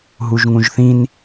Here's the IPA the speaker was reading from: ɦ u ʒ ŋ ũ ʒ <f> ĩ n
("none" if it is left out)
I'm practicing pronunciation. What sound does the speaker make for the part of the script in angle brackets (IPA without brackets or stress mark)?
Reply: θ